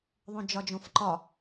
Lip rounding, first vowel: rounded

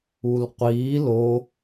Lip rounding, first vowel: rounded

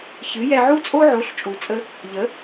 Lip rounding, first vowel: unrounded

